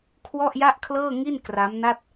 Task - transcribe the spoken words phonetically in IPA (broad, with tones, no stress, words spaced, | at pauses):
kʰwɔ˥˩ʔja˥˩ʔkʰlɤː˥˩ŋi˥˩n kra˦˥mna˥˩t̚